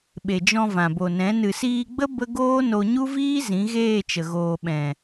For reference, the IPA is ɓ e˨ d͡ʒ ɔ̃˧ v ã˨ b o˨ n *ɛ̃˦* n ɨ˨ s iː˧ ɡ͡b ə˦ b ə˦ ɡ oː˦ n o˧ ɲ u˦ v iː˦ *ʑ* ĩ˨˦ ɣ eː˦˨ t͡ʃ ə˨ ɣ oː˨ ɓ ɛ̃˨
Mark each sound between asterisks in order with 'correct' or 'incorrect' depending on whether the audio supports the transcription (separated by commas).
incorrect, incorrect